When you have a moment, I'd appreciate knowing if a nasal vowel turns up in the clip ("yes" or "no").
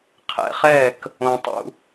yes